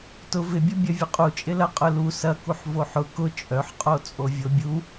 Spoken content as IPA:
tʊ vɪbʲʊ bʲɐvʲʊqʼut͡ʃʼɪ lɐqʼʊlu sɐ kuħvoħʊ kʊ t͡ʃʼœħqʼo t͡sʼovʲobʲu

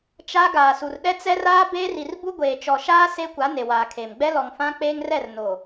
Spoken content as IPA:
t͡ʃa˦ ɡaː˨su˨rɗɛ˦ t͡sɛ˦raː˦ beː˦ri˨r bu˦ɡʷeː˨t͡ʃɔ˨ ʃaː˦ se˦kʷa˨˦ ne˨waː˨kʰe˨m ɡ͡bɛ˦lɔ˨ŋfã˦ k͡peː˦ŋrɛ˦˨r no˨

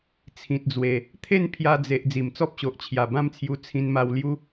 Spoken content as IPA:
t͡sʰĩ˨t̚d͡zwe˨˩ | t̪ʰe˥˧npʰja˧d͡ze˨ʔ d͡zi˨˩mt͡sɔ˦p̚ɕo˨ʔt͡ɕʰja˨˩ bã˥˧mt͡sʰju˧ t͡sʰĩ˧nma˧wlju˦

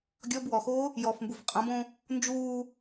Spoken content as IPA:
ɡʲɔb wɔxoː | jɔfmbuf qʼɐ̃bõ | nd͡ʒuː

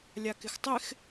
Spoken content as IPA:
lʲakɪxtˤɪx

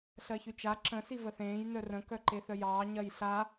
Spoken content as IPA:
ɬɜçyt͡ʃa ǁə̃ sivəθẽːj nœrə̃ kœǃeθœjɑː ɲɜjɬa

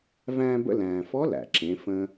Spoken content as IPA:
væ̃ː˧bə̰˧læ̃ː˩fɔ˧˥ læ̰˩ǁẽ˩˧ fə̃˧

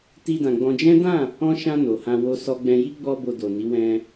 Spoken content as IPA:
ti˧dã˨ɡ͡bɔ̃˧ d͡ʒɛ̃˦ dã˦˨ | ɔ̃˧ʃã˧ no˨hã˧ wo˧sɔ˧ɡ͡bɛ̃˧ji˦ ɡ͡bɔ˧ bo˧do˨ni˨˦ wɛ̃˧

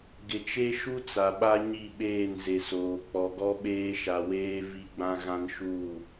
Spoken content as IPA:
ɡɪ˨t͡ʃe˦ʃu˦ t͡sa˨ɓa˦ ɲi˦˨ɓeː˦˨nze˨soː˨ k͡pɔ˨ɡɔ˦ɓeː˦ ʃa˨weː˦ vi˦ɡ͡bã˦ ɣã˦nʃuː˦˨

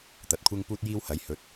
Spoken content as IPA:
t̪ɐ˨t̚kʷʰɪ˥ŋ puː˥t̚jiː˥whɐ˨˥jhɵ˨˥t̚

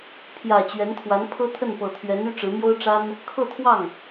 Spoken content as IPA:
pʰjä˨˩ t͡ɕɥɛ˧˥nt̪ʰwa˧˥n pʰɤ˥t̪ʰə˥˩npɤ˨˩t̪ʰɥɛ˧˥n y˥ʈ͡ʂɻ̩˧˥ mjo˥ʊ̯ʈ͡ʂa˥n | kʰɤ˥˧t̪ʰwɑ˥˩ŋ

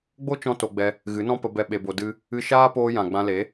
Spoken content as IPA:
ɡ͡bo˦t͡ʃɔ̃˧ to˧ɡ͡bɛ˧ | ɣɨ˨˦nɔ̃˦pə˧ bɛ˦ɓe˧bo˧ dɨ˦ | ɨ˧ʃaː˦poː˧jã˨ ɡ͡bã˧le˨˦

